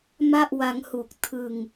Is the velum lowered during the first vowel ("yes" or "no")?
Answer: no